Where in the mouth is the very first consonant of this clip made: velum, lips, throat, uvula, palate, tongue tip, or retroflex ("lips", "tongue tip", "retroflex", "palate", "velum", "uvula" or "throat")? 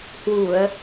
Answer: throat